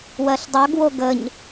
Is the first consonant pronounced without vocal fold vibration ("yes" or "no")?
no